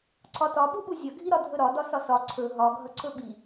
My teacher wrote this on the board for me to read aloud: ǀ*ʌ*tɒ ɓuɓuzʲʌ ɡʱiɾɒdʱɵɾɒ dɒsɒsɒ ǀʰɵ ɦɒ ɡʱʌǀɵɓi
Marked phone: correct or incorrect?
incorrect